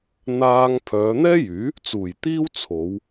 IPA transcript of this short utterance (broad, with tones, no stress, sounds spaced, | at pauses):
n̪ aː˧ ŋ pʰ œː˨˧ n̪ ɛː˥ j yː˨˥ | t͡s uː˨˩ j t̪ iː˥ w t͡sʰ o˨˧ w